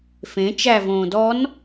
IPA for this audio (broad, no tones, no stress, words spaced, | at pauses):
fẽ t͡ʃævõː dɔn